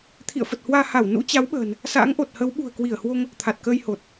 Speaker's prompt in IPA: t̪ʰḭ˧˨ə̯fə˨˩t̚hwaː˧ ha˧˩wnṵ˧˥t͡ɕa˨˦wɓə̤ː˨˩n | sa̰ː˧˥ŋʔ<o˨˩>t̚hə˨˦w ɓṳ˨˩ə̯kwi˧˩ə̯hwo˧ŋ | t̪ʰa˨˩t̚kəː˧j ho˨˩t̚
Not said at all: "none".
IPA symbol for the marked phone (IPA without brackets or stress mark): o˨˩